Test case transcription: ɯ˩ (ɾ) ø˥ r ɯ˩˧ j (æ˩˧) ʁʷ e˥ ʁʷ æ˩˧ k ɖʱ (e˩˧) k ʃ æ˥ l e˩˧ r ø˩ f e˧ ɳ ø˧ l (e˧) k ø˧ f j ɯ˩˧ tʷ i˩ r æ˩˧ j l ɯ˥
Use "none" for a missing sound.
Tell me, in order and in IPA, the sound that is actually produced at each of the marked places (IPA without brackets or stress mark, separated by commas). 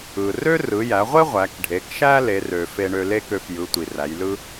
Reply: r, æ˩˧, e˩˧, e˥